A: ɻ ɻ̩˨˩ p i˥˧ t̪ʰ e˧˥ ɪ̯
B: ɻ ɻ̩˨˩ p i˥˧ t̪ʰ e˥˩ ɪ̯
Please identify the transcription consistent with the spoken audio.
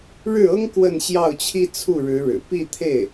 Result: B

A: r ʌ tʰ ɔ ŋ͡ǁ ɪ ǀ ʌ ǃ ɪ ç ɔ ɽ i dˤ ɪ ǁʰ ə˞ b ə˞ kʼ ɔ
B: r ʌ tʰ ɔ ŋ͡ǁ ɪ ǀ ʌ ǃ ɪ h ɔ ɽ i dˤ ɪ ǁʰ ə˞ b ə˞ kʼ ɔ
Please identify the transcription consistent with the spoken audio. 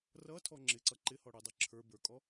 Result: B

